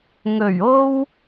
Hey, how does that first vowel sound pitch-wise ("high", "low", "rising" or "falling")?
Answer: low